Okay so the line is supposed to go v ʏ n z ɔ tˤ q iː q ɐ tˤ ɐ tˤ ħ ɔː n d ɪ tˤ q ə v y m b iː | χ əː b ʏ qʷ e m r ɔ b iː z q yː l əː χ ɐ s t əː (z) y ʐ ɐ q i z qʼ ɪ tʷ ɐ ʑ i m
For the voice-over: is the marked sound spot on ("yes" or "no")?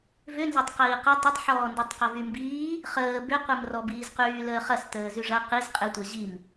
yes